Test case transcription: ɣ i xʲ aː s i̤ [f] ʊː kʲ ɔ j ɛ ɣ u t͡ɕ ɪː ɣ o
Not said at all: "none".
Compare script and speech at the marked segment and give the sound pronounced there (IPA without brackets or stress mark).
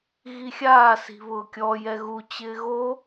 β